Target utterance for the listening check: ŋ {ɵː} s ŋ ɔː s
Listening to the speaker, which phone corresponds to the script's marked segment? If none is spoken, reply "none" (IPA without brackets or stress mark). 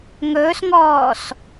ɵː